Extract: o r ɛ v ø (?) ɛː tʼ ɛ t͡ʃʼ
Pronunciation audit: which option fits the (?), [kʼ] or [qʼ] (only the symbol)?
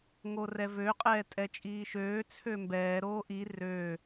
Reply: qʼ